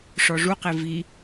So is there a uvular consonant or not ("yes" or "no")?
yes